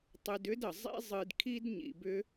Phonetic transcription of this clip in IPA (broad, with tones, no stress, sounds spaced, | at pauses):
tˤ ɨ˧ d ʏ˦ d ə˧ zˤ ḭ˦ zˤ ɨ˧ d kʰ i˦ d ɲ ḭ˧ b ʏ˦